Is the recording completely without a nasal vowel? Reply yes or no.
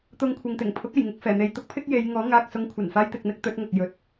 yes